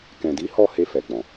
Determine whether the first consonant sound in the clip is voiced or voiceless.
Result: voiceless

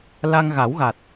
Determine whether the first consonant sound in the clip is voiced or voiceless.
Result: voiced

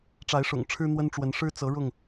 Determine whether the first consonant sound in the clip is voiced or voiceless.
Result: voiceless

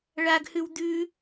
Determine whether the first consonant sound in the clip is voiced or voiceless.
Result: voiced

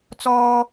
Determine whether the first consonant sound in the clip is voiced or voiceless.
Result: voiceless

